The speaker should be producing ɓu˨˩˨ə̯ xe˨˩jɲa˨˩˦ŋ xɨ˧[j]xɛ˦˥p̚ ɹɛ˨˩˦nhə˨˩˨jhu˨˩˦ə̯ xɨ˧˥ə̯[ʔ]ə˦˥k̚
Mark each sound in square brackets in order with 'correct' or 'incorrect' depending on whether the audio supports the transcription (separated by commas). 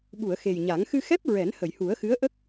incorrect, correct